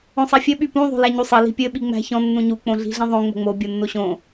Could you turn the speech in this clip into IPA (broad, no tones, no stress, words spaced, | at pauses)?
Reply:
õsˤæfʲɘ ɓypũ ðˤo̤læɲusˤɘ li̤pʲɘ ɓiŋ͡mæ̤çɔ̃ nːũɲu k͡põɮi̤ɮĩðˤõ ŋ͡mo̤ŋ͡mo bʲonːoɕõ